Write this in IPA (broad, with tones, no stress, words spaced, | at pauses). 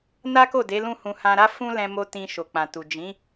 na˦ko˦˨ de˨˦lũ˦˨hũ˧ hã˧ɾa˦fũ˦ lɛ̃˧mo˧ tĩ˧ʃo˨k͡pã˨tu˨ d͡ʒĩ˨˦